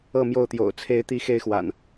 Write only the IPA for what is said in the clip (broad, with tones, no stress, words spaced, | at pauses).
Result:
ɤ˥˨mjo˥˨ʊ̯t̪jo̰˨˩ʊ̯ t͡sʰe˨˦ɪ̯t̪i˨˦ xe˦ɪ̯xwa̰˨˩n